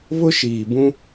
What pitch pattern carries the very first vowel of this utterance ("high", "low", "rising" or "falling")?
high